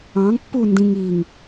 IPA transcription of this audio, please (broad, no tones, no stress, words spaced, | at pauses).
ɑ̃ŋpːu ndĩŋiŋ